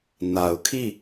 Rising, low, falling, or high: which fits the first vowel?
low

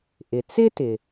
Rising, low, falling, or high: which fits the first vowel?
low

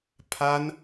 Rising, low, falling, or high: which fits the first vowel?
high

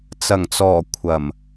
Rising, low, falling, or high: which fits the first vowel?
low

